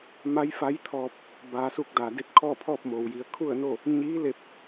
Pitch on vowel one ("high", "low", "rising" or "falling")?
rising